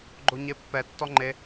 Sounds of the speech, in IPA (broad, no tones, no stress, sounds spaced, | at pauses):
ɡ͡ǃ o ɲ e pː ɛ tː ɔ ŋ͡ǃ e